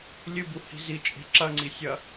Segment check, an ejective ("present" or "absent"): present